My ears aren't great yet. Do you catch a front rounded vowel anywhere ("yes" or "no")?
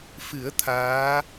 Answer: no